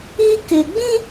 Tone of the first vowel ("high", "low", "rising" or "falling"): high